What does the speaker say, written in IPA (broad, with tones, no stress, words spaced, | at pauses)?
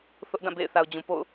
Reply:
θʊ˦ʔdã˦˨ bḛ˦˨ɪ̯ θa˨ʊ̯d͡ʑũ˨po̰˦˨ʊ̯